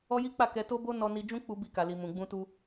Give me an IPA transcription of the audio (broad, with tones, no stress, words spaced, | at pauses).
ɔ˦ji˦k͡pa˦˨kɛ˧ to˦bo˦ nɔ˧ni˧ d͡ʒũ˦k͡pu˧ bi˧ka˨li˨ mũ˨ɡ͡bũ˧tu˧